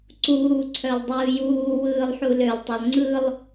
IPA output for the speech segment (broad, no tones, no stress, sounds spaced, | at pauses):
ǀ uː ǀʰ œ lˠ dˤ ɯː j uː w ɯː lˠ ħ u l ø lˠ tˤ ø lˠ ŋ͡ǀ ɯ lˠ